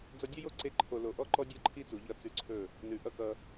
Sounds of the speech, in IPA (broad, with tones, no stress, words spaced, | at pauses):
d͡zʌ˧dʲʌ˦jo˦ǀe˧ ǃʰo˨lo˨ ʔɔ˦ǃɔ˦ dʲɔ˦ǃʰi˦t͡su˨ ʎʌ˦˨t͡sʉ˧ǀʰɵ˦˨ | nʉ˨ʔʌ˦kʌ˧